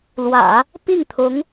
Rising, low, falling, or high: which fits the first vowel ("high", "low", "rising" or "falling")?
low